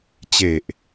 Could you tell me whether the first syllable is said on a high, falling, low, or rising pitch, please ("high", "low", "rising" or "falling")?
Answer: low